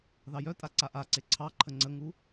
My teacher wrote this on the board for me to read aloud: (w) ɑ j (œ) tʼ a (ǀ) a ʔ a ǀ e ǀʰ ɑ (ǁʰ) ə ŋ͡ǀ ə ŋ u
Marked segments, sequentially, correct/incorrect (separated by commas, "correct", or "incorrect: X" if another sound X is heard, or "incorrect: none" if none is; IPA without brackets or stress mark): incorrect: ð, correct, correct, incorrect: ǃʰ